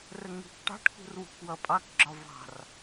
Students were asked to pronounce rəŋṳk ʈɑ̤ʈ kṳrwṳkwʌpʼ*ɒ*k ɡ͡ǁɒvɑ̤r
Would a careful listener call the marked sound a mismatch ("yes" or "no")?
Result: yes